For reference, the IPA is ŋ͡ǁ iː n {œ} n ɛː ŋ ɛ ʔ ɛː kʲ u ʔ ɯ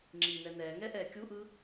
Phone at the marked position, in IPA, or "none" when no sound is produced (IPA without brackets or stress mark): ɛ